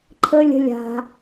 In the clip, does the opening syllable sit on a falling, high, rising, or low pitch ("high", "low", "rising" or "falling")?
high